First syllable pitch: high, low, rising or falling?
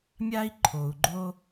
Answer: high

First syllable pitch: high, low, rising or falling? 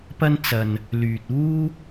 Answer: high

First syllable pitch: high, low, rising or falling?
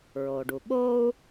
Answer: low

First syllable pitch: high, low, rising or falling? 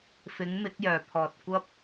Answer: rising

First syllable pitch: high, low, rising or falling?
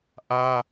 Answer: high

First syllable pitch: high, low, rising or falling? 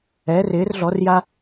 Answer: rising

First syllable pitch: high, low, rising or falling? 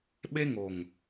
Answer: high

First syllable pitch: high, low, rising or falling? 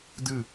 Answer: falling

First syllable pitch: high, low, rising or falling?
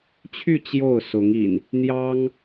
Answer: falling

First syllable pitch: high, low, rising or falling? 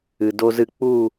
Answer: low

